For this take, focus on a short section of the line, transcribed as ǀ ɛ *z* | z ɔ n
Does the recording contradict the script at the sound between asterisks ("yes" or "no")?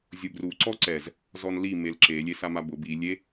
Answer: no